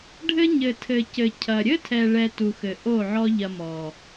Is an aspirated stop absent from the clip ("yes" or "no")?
no